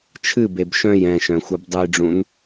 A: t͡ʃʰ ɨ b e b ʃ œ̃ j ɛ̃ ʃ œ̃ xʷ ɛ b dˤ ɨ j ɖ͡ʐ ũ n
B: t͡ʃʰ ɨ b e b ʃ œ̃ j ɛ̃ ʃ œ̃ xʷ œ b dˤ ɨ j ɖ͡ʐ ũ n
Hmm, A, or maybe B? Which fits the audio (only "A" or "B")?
B